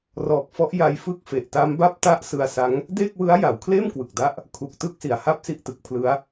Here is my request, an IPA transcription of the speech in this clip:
r ɔː˨˩ k̚ f ɔ˦˥ ʔ j a˧ j f ɯ˦˥ k̚ f e˨˩ ʔ t a˦˥ m b a˥˩ p̚ t a˥˩ ʔ s ɯ˧ a̯ s a˦˥ ŋ | d eː˥˩ k̚ w ɯ˦˥ a̯ j a˩˦ w kʰ l eː˥˩ m k w ɯ˨˩ k̚ d a˦˥ ʔ | kʰ u˨˩ k̚ t ɯ˦˥ k̚ s i˨˩ a̯ h a˥˩ p̚ s i˥˩ ʔ t ɯ˨˩ k̚ pʰ l ɯ˦˥ a̯

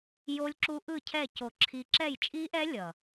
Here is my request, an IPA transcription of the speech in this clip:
j o˦˥ lʲ ǁ u˦˥ ʔ ɯ˦˨ cʰ ɛ˦˨ c o˦˨ ǁʰ i˦˥ ǁ ɛ˦˨ j t͡ʃʼ i˦˥ ʔ ɛ˦˥ lʲ ʌ˦˨

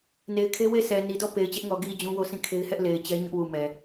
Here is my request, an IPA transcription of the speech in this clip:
n e˨ ɪ̯ kʰ e˦ w e˦˨ sʰ ɛ˨ n i˨ d ɔ˦˨ p e˨ ɪ̯ t͡ɕ ɛ˦ ʔ ŋ ɔ˨ ɡ i˨ d͡ʑ ũ˦ w o˦˨ sʰ ĩ˦˨ kʰ e˦ ɪ̯ h ɛ˦ ʔ l e˨ ɪ̯ t͡ɕ ɛ˦ ɲ ʊ˦ ʔ w u˨ m ɛ˨

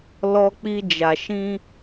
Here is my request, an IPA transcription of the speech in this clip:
l ɔ˧ k͡p i˧ d͡ʒ a˨ ʃ ĩ˧

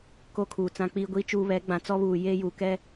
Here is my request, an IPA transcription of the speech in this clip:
k o˦ kʰ uː˨ t͡s ã˦ k͡p iː˦ ɡʷ i˦ t͡ʃ uː˦ β ɛ˨˦ ɡ͡b ã˨ t͡s ɔ˦ β uː˨ j eː˦ j uː˨ k ɛ˦

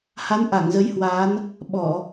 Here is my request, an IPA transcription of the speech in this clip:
h a˨˦ n ʔ a˧˩ ŋ z ə˨˦ j h w aː˨˦ n | ɓ ɔ˧˩˨

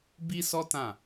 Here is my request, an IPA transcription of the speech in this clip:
b i˦ s ɔ˦ t ã˦˨

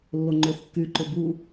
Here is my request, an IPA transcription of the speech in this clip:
lː o ŋ͡ǃ ʏː θ kː y ǃ ʏ b u

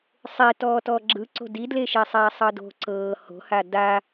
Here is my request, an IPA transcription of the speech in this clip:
sˤ e t ɔː t ɔː ɡ͡ǁ ɯ ǀ o̤ d i d l e ʃ e sˤ ɛː sˤ ɤ d o̤ ǀ ɤː h o̤ h a d a

